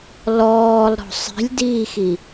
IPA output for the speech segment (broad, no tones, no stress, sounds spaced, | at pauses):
l ɔː lˠ ɾ ɔ̤ sˤ i̤ lʲ d iː x i